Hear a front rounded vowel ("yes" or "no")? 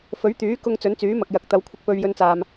yes